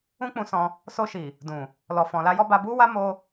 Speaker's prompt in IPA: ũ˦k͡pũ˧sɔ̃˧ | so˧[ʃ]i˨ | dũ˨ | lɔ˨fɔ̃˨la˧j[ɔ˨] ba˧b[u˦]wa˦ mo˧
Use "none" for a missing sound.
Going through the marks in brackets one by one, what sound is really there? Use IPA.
ʃ, ɔ˧, u˦

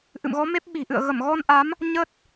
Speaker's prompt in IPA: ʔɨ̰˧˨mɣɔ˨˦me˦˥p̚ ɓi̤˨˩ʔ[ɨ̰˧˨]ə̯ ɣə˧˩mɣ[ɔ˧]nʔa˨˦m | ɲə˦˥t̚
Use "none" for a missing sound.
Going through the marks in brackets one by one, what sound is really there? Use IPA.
ɨ̰˧˨, ɔ˧

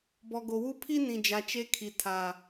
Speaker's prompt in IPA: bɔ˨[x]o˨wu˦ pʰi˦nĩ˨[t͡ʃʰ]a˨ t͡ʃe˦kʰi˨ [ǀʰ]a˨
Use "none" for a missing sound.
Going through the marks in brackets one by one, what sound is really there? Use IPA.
ɡ, d͡ʒ, tʰ

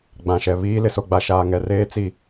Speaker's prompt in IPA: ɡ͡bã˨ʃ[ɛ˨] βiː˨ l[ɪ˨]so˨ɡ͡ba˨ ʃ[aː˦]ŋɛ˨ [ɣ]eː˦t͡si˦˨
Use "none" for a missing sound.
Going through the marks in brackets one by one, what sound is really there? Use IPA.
ɛ˨, ɪ˨, aː˨, r

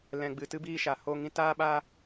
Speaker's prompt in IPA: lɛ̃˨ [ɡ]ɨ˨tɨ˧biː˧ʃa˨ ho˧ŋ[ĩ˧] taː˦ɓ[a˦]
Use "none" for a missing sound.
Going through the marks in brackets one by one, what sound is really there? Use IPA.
ɡ͡b, ĩ˧, a˦

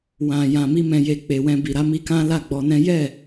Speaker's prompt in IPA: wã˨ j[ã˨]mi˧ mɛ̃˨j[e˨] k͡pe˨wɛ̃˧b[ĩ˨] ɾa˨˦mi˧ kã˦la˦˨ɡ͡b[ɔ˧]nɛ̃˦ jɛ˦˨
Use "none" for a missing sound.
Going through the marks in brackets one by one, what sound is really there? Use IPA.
ã˨, e˨, i˨, ɔ˧

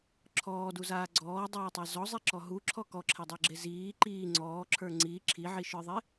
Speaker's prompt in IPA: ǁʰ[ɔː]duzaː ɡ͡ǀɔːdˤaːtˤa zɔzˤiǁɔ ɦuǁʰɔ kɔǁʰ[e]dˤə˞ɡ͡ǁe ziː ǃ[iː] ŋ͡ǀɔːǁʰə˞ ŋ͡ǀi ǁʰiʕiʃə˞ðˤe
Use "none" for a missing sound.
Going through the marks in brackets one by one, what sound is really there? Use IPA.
ɔː, e, iː

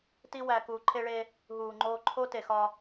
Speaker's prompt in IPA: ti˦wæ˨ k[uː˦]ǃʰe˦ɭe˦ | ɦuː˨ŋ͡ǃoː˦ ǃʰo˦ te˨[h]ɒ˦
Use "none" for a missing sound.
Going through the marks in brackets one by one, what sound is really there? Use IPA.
uː˨, x

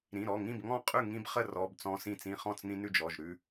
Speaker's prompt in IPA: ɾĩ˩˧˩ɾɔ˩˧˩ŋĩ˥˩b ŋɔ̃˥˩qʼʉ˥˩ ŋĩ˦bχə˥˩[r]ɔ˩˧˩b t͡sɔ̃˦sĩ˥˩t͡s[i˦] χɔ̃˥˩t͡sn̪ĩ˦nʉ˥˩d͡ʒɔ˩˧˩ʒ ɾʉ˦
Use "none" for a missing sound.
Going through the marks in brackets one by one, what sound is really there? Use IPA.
r, ĩ˦

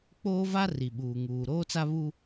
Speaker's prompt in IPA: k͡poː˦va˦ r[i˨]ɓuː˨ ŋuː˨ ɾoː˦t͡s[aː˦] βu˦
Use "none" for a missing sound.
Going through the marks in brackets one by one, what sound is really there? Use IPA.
i˨, a˦

